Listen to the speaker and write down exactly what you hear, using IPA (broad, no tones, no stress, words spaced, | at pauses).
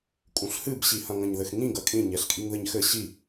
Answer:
kʼũɬhɨbɕihɐ̃ ŋɐ̃ɲðɘxŋĩ ɡɐkʼĩ ɲɛɬkʼiŋðɘɲxɘ ɕi